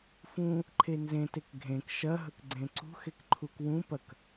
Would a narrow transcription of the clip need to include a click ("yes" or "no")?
yes